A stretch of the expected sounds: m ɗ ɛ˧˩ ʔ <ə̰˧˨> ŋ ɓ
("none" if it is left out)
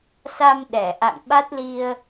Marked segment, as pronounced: a̰˧˨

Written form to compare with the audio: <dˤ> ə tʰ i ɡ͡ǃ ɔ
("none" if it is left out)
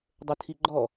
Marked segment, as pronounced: dˤ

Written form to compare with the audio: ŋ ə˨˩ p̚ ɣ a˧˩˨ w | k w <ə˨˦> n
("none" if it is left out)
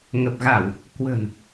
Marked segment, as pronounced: ə̤˨˩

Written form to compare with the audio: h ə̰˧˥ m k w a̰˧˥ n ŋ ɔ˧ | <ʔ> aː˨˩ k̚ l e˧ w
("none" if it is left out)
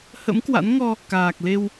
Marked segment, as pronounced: k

